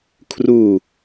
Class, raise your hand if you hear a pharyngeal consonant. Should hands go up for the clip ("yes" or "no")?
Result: no